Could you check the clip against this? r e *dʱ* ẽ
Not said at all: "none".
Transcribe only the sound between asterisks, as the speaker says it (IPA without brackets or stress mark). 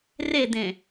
d̪